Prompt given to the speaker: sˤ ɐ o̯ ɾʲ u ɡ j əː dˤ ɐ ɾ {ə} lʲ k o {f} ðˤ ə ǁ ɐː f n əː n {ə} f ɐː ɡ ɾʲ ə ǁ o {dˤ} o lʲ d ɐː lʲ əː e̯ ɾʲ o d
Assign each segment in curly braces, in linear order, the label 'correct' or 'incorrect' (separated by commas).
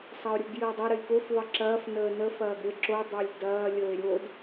correct, correct, correct, correct